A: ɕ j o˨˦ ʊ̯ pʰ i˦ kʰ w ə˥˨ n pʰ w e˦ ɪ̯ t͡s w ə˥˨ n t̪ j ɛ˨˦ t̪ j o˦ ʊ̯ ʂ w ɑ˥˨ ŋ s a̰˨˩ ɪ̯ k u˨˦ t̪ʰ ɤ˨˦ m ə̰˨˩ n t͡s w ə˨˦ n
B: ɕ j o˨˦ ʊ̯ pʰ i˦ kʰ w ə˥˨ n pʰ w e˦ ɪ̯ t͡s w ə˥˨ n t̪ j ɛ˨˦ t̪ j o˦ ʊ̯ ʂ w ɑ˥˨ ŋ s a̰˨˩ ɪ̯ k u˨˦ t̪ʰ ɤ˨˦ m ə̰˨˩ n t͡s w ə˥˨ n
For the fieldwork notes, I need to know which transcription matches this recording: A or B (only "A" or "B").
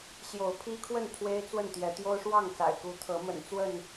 B